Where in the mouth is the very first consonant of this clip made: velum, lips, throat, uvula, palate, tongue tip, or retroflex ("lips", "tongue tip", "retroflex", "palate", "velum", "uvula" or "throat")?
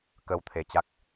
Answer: velum